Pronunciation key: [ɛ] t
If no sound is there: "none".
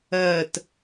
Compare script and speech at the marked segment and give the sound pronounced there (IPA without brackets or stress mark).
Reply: ɜ